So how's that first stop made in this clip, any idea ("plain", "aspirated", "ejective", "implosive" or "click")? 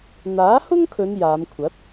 aspirated